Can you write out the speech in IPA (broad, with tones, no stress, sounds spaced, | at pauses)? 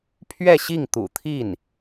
pʰ ɥ ɛ˥˧ ɕ i˥˩ ŋ t̪ ṵ˨˩ t̪ʰ i˥˩ n